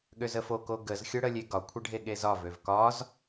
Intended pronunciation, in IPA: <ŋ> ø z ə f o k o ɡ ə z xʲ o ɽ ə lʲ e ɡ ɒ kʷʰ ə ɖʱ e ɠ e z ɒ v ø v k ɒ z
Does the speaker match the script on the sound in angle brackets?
no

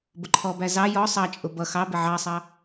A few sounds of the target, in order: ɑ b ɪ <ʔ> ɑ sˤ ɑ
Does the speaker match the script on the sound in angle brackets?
no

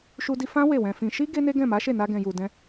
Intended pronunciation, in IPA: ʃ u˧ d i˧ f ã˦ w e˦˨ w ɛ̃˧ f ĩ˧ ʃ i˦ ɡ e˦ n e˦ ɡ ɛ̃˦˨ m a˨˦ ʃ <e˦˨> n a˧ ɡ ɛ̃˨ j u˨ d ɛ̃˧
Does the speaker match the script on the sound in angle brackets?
yes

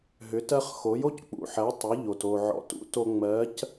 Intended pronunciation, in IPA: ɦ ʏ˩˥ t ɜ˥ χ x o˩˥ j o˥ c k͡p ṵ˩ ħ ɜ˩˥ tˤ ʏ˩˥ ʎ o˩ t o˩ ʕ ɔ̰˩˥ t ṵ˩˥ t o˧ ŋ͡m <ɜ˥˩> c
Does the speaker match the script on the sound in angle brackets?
no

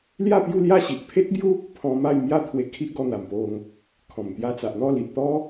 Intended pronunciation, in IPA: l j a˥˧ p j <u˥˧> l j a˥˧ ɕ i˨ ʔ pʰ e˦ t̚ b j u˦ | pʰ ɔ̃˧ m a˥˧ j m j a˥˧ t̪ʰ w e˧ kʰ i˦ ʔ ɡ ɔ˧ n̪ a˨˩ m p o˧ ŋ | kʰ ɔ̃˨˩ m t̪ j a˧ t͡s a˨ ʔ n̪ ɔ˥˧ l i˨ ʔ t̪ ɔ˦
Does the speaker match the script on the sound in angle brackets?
yes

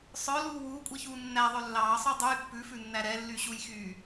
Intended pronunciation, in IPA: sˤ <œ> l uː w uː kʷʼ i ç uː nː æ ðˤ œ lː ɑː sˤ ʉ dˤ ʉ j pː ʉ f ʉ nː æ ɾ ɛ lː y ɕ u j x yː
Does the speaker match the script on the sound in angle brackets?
yes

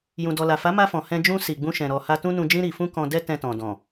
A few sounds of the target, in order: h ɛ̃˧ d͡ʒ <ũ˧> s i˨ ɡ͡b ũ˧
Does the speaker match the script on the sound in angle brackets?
yes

